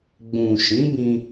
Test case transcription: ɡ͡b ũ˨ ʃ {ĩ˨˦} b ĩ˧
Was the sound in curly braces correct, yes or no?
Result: yes